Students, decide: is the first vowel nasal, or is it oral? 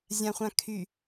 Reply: nasal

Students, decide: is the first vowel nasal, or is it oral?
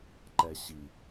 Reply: oral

